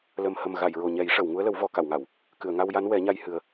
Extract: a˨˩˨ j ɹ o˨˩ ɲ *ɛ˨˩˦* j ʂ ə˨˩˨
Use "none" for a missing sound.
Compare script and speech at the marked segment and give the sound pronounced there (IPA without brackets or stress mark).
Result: ɛ˨˩˦